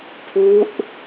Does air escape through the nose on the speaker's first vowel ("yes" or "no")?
no